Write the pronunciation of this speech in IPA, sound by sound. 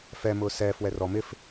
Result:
f ɛ m ʊː s ɛː f w ɛ r ɔ m ɪ f

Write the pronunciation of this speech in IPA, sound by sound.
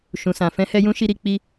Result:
ʃ ũ˨ s ã˨ f ɛ̃˧ h ɛ˧ j ũ˦ ʃ i˧ ɾ i˧ k͡p i˧

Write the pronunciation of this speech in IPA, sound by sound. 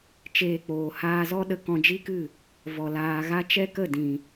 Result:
t͡ʃ eː˧ k͡p oː˨ h aː˧ z ɔ˦ ɗ ə˧ k ɔ̃˧ d͡ʒ i˦ k ɨ˦˨ | v ɔ˨ l aː˧ ɣ a˦ t͡ʃ ɛ˦ k ə˦˨ d ĩ˨

